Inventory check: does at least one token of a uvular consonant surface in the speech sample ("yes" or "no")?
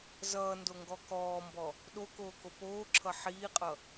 yes